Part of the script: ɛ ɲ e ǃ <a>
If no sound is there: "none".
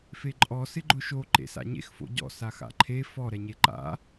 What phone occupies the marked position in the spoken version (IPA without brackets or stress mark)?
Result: a̰